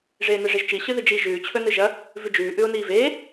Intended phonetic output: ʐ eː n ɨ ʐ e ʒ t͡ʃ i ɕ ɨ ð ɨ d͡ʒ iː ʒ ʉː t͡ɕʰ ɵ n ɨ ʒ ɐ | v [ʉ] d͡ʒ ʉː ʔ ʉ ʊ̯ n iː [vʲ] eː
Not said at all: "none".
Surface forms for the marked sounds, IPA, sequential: ʉ, v

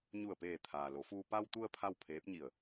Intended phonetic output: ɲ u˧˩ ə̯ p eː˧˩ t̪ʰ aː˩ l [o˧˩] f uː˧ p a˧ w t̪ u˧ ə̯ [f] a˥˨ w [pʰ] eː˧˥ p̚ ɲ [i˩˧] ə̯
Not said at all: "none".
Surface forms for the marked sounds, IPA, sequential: o˩˧, pʰ, pʰ, i˧˩

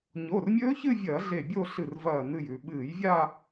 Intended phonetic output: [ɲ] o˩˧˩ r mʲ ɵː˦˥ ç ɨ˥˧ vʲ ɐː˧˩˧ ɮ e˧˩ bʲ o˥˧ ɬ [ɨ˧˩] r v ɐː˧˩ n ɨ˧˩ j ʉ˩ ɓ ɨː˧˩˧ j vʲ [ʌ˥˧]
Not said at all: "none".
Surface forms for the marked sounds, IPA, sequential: ɲ, ɨ˧˩, a˥˧

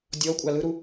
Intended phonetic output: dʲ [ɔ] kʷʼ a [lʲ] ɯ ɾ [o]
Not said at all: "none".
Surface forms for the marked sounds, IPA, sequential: ɔ, l, u

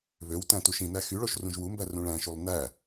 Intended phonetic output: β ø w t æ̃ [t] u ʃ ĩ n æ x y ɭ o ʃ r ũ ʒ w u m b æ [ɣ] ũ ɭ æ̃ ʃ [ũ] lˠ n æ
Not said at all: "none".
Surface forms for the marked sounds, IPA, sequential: t, r, u

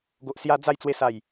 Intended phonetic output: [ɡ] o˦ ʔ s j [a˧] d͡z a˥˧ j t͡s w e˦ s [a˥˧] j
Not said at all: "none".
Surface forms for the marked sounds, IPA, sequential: ɡ, a˦, a˥˧

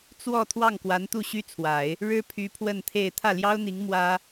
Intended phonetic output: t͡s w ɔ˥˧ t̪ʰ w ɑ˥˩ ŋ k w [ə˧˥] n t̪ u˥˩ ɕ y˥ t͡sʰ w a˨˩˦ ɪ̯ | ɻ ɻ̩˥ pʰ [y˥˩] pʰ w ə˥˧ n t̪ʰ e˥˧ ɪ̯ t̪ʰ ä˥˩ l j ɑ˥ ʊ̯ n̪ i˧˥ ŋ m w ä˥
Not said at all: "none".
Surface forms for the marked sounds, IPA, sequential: a˧˥, y˧˥

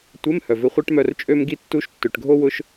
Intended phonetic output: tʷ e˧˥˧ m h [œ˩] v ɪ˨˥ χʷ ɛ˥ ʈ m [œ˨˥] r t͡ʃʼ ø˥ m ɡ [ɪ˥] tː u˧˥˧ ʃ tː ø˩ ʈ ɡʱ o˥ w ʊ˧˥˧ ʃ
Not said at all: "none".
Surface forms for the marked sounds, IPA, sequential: œ˩, œ˦˨, i˥

